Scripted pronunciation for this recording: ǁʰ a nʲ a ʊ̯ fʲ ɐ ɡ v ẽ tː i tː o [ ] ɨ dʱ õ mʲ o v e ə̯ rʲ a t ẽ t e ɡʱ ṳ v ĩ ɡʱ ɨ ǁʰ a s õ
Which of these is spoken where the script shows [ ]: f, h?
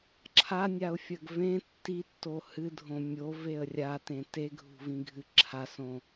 h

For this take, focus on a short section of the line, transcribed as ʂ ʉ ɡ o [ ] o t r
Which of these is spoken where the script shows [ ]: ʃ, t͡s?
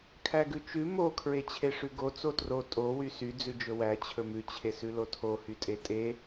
t͡s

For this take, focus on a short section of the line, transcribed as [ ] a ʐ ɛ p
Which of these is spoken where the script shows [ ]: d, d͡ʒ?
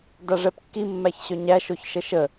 d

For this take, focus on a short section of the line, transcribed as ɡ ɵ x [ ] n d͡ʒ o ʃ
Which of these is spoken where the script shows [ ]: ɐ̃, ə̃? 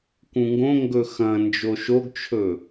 ɐ̃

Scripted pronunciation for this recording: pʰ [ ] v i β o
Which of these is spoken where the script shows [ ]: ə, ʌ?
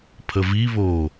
ə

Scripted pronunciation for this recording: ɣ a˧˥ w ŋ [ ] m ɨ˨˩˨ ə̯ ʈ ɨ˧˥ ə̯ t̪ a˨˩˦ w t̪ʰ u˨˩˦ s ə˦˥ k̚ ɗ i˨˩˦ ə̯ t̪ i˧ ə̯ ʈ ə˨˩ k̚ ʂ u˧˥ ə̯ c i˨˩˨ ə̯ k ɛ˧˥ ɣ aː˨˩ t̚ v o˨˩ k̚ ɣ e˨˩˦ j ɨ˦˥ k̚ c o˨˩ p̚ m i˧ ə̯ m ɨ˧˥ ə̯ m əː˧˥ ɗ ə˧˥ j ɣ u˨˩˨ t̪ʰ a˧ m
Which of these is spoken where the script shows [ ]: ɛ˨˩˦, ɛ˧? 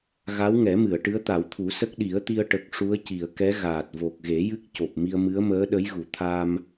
ɛ˨˩˦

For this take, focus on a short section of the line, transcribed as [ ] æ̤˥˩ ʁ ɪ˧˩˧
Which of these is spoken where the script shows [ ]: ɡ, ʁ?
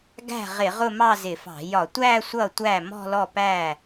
ɡ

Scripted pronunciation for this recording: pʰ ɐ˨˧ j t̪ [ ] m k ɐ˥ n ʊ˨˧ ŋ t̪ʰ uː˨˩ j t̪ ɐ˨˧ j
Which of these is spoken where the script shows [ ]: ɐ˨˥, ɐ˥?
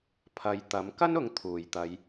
ɐ˨˥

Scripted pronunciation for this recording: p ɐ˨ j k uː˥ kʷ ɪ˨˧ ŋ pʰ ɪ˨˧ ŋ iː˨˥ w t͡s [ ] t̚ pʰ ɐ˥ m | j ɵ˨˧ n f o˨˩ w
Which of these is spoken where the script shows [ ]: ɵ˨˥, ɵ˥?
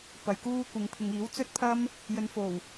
ɵ˥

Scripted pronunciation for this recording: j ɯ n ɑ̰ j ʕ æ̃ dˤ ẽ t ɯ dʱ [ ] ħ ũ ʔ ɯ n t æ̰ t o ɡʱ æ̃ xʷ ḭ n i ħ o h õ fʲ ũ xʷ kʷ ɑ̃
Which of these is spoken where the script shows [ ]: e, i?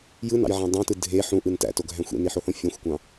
e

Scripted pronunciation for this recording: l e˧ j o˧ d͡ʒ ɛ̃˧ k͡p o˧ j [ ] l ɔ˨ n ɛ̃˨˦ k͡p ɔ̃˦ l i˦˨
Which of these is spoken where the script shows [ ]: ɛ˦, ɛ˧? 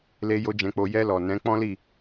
ɛ˧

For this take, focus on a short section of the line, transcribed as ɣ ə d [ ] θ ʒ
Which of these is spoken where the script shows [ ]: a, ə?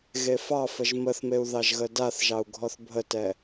a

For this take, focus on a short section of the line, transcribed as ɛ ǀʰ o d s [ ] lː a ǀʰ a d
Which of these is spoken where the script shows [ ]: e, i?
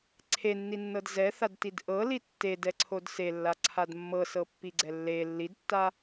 e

